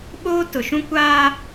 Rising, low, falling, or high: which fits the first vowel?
high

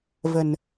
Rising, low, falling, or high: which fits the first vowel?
low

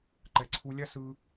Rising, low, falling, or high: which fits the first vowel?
low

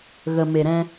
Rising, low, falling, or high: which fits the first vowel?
low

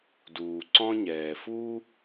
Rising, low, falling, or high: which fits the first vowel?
low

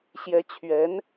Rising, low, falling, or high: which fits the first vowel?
rising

